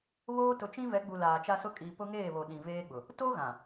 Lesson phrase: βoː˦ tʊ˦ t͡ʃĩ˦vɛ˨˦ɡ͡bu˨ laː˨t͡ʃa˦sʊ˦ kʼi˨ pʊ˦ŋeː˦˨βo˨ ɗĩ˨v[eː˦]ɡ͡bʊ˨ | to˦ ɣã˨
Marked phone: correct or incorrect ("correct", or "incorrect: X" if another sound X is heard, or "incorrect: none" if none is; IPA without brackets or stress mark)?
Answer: correct